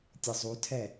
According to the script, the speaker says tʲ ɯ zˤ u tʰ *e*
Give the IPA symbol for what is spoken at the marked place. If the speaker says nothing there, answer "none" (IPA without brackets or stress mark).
ɛ